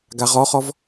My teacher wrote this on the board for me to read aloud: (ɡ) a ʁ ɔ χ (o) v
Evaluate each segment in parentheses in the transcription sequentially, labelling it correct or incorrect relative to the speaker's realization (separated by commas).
correct, incorrect